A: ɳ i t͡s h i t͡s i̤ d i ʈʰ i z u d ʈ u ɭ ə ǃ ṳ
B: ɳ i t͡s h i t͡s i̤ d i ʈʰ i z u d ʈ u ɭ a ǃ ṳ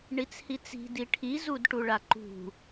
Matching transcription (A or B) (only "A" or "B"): B